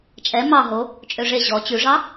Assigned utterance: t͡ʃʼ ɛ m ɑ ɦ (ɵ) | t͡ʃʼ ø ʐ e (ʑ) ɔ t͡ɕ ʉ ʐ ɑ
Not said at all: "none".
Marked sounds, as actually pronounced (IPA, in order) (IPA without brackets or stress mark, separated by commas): o, ʑ